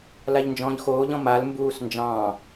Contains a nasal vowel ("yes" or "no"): yes